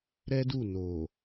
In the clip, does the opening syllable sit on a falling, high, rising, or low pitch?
high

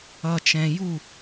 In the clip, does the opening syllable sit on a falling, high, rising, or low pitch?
low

